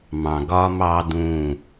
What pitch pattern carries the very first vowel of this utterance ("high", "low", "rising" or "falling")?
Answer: low